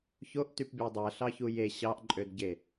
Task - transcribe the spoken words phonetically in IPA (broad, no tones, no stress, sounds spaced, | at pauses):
ç o ʔ t y p bʲ ɑ dˤ æ ɬ ɑ ç u j e ɕ ɑ ʔ ǃʼ ø d ɟ e